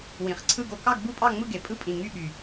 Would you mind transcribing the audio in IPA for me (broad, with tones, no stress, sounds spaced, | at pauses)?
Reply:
w ĩ˨˩ χ ǀʰ ɯ˥˧ ɡ o˥˧ k ɑ˥˧ ɡ b u˥˧ pʼ ɑ˥˧ ŋ͡m ɯ˥˧ ɡ e˨˩ pʼ ɯ˥˧ pʼ ĩ˨˩ ŋ y˥˧ ɓ y˨˩